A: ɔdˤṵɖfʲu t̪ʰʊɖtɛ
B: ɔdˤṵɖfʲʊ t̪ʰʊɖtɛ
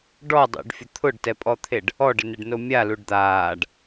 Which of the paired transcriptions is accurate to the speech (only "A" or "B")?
B